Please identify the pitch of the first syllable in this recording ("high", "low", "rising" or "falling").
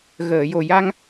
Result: low